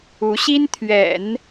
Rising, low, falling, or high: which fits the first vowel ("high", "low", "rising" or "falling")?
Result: rising